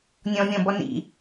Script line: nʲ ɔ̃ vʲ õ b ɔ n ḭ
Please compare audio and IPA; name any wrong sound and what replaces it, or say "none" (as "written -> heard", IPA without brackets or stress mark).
õ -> ɔ̃